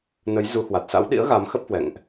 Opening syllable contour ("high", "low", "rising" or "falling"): rising